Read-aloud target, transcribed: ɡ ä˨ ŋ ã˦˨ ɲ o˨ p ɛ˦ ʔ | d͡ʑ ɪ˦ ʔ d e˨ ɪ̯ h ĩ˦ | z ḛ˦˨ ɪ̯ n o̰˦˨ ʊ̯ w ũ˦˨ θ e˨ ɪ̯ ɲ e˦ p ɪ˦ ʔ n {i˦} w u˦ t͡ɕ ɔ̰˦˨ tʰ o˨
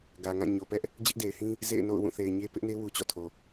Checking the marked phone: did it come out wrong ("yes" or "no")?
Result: yes